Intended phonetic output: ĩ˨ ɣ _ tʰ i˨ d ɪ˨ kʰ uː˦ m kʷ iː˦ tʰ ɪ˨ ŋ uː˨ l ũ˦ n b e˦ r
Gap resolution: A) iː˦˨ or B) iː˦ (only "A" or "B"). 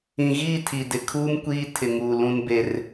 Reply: A